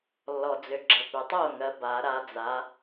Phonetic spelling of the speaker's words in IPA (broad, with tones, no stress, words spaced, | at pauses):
lːɔ˨d͡zʏ˨ɡ͡ǁə˨ pʏ˨tˤo˥˩ŋɜ˨˦ ba˨˩˦ɾa˨˦d͡za˨˦